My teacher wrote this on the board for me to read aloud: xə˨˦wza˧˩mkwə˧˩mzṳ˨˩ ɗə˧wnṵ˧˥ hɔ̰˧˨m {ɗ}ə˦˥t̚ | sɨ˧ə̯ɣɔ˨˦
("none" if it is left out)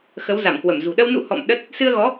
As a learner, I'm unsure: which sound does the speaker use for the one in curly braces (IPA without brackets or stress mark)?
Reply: ɗ